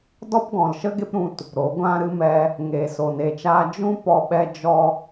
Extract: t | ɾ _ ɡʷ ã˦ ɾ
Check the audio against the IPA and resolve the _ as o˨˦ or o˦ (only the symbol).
o˨˦